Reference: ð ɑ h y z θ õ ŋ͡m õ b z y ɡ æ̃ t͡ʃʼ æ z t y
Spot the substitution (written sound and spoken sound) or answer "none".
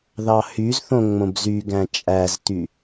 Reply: none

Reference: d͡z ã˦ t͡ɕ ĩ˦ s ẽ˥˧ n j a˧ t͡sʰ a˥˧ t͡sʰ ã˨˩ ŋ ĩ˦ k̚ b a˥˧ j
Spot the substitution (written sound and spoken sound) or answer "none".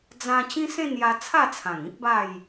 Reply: none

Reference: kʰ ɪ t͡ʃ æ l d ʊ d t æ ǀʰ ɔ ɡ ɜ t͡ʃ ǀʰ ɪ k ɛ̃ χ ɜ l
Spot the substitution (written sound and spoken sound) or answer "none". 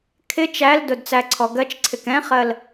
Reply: t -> t͡s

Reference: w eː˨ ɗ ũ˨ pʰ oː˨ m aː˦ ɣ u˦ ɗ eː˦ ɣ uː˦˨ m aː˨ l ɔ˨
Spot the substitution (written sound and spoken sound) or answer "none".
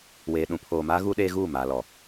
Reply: none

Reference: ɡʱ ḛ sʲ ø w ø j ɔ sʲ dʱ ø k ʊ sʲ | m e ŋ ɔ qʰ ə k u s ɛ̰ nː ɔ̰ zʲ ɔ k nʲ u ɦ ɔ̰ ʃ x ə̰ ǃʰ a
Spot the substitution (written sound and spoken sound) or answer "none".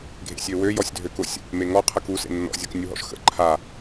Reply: ɛ̰ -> ḛ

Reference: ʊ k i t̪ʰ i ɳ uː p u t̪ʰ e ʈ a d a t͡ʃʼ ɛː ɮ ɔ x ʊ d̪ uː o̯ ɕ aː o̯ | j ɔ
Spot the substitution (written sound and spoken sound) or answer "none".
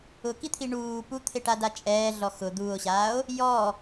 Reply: none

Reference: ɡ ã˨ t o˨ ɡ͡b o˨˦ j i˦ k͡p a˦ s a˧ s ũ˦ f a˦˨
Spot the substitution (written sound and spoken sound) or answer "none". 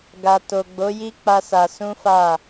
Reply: ã˨ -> a˨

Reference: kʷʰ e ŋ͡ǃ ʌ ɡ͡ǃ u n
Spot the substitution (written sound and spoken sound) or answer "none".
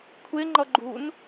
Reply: none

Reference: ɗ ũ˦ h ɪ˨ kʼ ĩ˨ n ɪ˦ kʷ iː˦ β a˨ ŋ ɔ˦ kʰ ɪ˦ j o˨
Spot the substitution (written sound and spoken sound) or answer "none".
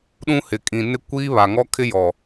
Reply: o˨ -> ɔ˨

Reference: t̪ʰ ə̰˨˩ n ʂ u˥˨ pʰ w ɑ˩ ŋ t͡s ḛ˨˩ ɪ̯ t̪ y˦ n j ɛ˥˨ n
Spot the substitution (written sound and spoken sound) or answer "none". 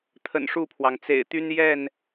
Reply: none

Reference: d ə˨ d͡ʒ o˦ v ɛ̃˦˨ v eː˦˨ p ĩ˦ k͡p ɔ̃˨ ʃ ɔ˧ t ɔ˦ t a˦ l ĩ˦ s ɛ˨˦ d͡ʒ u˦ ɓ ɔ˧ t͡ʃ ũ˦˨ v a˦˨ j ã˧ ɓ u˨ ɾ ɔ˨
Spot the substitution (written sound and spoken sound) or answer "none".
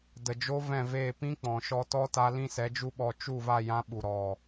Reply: ũ˦˨ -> u˦˨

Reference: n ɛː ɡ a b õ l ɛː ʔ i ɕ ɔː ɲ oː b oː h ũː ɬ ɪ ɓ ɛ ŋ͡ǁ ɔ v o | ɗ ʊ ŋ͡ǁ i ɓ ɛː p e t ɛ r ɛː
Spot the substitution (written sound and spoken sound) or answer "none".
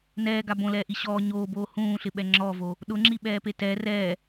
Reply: none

